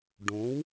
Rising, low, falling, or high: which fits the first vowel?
rising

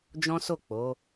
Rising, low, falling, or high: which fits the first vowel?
high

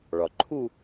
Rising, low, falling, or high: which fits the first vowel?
low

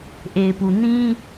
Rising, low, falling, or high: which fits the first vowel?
low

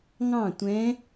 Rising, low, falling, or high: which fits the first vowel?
falling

